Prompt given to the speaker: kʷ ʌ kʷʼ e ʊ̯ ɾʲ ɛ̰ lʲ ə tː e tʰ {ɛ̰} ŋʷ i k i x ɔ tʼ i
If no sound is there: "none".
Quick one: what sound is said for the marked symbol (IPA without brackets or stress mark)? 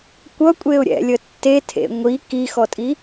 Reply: ḛ